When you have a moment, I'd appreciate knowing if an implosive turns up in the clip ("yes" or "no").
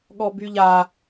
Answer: yes